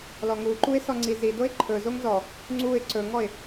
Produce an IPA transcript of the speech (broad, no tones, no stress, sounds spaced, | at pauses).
l ɔ ŋ u ǃ u ɪ̯ s ɔ ŋ͡ǀ i z i d o ɪ̯ ǃʰ ɵ z o ŋ z ɔ | ŋ͡ǀ u ɪ̯ ǀ ɵ ŋ ɔ ɪ̯